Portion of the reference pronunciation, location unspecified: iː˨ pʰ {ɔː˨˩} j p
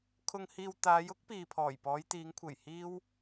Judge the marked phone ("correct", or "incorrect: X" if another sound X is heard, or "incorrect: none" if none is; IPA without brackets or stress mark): correct